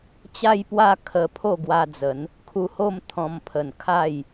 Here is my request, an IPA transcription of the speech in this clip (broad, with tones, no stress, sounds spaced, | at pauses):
t͡ɕ a˦ j p w a˦ kʰ ə˧ pʰ o˥˧ ɡ w a˧ d͡z ə˨˦ n | kʰ u˧ h o˥˧ m t̪ʰ ɔ̃˧ m pʰ ə˨˩ n kʰ a˥˧ j